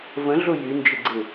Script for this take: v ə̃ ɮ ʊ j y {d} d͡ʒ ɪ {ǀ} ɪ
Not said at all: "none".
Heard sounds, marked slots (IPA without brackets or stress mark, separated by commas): n, ɡ͡ǀ